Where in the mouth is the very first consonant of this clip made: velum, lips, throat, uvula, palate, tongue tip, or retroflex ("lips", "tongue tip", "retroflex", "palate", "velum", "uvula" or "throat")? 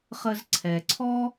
uvula